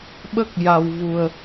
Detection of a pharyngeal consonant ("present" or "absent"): absent